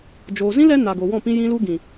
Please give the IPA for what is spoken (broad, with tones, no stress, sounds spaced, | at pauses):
d͡ʒ oː˨ z ĩ˦ l ɛ˨˦ n a˨ ɡ o˨ w ɔ̃˦˨ p ĩ˧ j ĩ˧ l u˧ ɡ ĩ˨